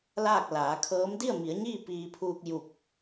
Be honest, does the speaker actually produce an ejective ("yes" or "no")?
no